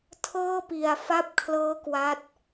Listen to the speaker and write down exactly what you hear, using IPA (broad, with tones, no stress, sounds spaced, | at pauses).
tʰ ɤː˥˩ p i˨˩ a̯ f a˥˩ p̚ kʰ l ɤː˦˥ k w a˦˥ t̚